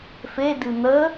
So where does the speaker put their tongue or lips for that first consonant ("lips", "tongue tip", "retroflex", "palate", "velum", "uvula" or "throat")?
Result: lips